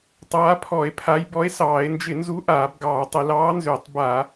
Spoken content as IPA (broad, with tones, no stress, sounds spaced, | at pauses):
tˤ aː˨˥ pʰ ɔ˧˩˧ e̯ pʰ a˨˥ j b ɔ˨˥ e̯ s ɑː˧˩˧ e̯ n d͡ʒ ɪ˧˩˧ n z u˨˥ ʔ aː˧˩˧ b ɡ ɑː˧˩˧ tˤ ɪ˧˩˧ l ɑː˨˥ n z ʏː˧˩˧ tˤ b a˧˩˧